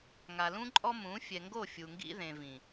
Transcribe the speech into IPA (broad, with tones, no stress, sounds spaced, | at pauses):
ŋ a˨ l ũ˦ ǃʼ ɔ˦ m ũ˨˦ fʲ ɛ˨ ŋ ɡ o˦˨ fʲ u˨ ŋ ɡ ḭ˦ ð ẽ˨ v ĩ˨